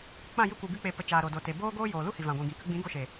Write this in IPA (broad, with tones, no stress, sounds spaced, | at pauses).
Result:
k͡p ã˦˨ j ɨ˧ kʷ ɨ˨ ɡ ɨ˧ k͡p e˨ p ə˨ t͡ʃ aː˨ ɾ o˨ d o˨ t e˨ b oː˦ ɡ oː˦ j oː˨ l u˦ h i˨ v ã˨ ɡʷ ĩ˨ ɡ ĩ˨ k ə˧ ɡ͡b ĩ˨˦ ɡ o˧ ʃ e˨